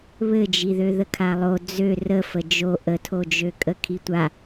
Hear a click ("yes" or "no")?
no